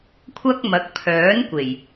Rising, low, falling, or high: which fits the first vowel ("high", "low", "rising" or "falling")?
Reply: high